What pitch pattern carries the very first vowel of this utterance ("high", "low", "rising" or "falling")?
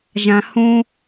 low